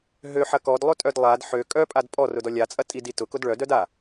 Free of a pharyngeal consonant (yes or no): no